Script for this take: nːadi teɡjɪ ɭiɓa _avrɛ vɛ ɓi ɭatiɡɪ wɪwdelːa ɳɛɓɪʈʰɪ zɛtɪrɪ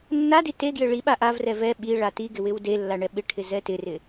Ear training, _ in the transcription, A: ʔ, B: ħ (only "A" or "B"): A